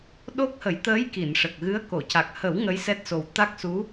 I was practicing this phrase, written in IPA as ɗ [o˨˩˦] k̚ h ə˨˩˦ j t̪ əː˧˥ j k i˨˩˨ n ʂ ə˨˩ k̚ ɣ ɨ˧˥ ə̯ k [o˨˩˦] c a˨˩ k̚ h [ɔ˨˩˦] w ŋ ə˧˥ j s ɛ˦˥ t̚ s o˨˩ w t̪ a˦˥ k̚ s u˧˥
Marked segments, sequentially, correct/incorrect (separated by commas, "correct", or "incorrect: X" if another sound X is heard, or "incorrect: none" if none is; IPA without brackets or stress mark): incorrect: o˦˥, incorrect: o˨˩˨, incorrect: ə˨˩˦